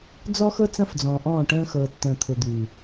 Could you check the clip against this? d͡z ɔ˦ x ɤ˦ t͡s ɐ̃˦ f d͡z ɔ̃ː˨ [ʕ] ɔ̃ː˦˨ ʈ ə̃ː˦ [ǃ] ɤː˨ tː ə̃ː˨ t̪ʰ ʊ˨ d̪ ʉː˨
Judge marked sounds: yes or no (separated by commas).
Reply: no, no